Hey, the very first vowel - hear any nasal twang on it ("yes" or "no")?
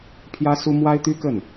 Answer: no